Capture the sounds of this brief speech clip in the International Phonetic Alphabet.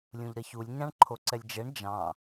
lʲũʎɾɐçulʲ ɲɑ̃ɳǃʰoǀɛlʲd͡ʒɛɳ d͡ʒɑ̃

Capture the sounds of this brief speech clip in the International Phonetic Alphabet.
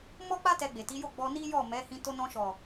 mɔ˦k͡pa˦ tɛ˧ɡ͡be˨ti˨˦jo˦˨ ɡ͡bɔ˧ni˦jɔ˦˨ mɛ˨˦ hĩ˧to˧nɔ̃˧ʃɔ˨

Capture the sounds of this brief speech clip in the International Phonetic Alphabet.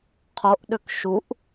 qʰoʔɗøk ʃuʔ

